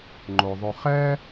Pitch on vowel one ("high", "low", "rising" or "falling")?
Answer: low